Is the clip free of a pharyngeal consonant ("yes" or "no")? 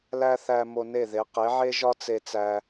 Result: no